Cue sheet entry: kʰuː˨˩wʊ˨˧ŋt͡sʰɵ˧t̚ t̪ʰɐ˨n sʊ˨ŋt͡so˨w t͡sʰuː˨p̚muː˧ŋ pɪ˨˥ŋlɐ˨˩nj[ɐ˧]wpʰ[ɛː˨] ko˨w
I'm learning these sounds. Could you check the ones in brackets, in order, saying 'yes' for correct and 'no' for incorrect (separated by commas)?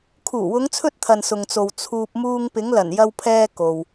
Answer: yes, no